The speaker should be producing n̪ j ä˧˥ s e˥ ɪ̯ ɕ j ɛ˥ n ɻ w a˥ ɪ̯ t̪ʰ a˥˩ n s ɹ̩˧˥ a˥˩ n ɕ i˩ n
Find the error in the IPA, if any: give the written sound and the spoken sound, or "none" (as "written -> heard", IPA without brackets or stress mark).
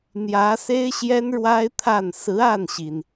none